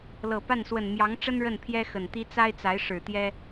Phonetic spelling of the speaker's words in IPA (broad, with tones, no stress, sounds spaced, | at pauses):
l ɤ˨˩ p a˥˩ n s w ə˨˩ n m j ɑ˧˥ ŋ ʈ͡ʂ ə˥ n ɻ ə˥˩ n pʰ j ɛ˥ x ə˨˩ n t̪ i˥ t͡s a˥ ɪ̯ t͡s a˧˥ ɪ̯ ʂ ɻ̩˨˩ t̪ j ɛ˥